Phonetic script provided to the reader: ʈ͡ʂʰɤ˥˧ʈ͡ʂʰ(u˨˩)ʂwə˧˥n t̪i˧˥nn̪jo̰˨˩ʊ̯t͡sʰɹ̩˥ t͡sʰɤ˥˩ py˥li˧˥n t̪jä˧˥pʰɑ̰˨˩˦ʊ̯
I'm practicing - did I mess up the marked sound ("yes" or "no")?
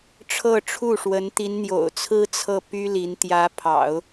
yes